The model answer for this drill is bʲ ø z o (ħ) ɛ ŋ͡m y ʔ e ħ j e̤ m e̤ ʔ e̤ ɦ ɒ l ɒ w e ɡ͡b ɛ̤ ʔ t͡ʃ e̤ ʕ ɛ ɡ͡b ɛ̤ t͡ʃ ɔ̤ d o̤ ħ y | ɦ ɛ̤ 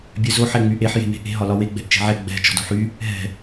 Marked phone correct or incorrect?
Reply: correct